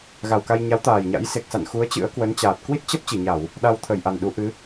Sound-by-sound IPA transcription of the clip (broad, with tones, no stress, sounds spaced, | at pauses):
ɣ a˨˩ w k a˧ j ɲ a˨˦ w t̪ aː˨˩ j ɲ a̰˧˥ j s e˨˩ k̚ s a̰˧˨ n x u˨˦ ə̯ t͡ɕ ɨ̰˧˥ ə̯ k w ə˨˦ n t͡ɕ aː˨˩ t̚ k w i˦˥ t̚ t͡ɕ ə˦˥ p̚ t͡ɕ i˧˩ ɲ a˧˩˨ w | ɗ a˧ w t̪ʰ ə˧˩ j ʔ a˨˩ n ɗ u˨˦ ʔ ɨ˨˦